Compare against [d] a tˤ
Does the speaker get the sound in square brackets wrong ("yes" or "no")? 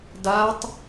no